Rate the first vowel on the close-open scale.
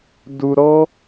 close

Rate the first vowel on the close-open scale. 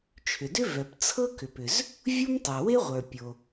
close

